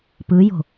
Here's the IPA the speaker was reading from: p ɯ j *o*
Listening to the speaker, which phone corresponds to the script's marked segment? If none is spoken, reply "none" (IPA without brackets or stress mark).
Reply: o̤